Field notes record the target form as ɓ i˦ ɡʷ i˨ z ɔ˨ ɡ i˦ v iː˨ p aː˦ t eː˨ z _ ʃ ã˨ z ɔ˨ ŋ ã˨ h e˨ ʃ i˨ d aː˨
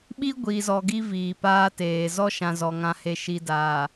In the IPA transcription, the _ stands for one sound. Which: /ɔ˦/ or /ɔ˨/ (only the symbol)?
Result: ɔ˦